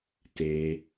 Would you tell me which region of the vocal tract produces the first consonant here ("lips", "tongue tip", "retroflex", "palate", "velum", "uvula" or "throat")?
tongue tip